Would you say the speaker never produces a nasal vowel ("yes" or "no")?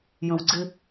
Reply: no